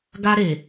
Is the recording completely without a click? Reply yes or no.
yes